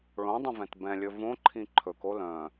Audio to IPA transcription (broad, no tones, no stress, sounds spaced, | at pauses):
ɭ õ dˤ ə̃ v ɛ̃ t b ɛ̃ lʲ ɵ v õ ǃʰ ĩ ǃʰ ɵ k o l œ̃